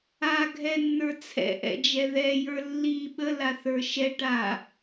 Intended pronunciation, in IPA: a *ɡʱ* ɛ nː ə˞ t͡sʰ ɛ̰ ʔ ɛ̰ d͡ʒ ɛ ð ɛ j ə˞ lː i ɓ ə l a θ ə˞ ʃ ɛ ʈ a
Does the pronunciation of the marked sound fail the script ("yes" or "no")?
no